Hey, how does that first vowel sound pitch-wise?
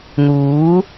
rising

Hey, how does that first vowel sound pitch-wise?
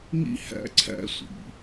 high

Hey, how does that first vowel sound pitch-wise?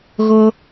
high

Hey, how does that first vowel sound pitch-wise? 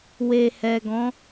low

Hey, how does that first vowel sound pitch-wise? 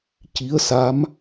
rising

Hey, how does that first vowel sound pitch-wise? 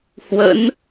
rising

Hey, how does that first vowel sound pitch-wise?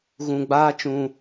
low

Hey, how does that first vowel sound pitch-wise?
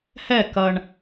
falling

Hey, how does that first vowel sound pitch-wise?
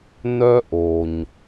high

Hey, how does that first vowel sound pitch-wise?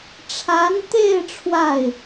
rising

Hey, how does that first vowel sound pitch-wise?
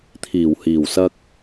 low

